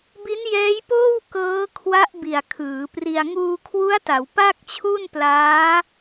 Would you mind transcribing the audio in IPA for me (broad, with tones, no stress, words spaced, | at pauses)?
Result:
bi˦˥njɛː˦˥jpoː˥˩w kɤː˦˥kʰwa˦˥ʔ bi˨˩a̯kʰɯː˩˦pri˧a̯ ŋuː˧ kʰwu˦˥a̯ta˩˦w pa˥˩k̚t͡ɕʰu˥˩nplaː˦˥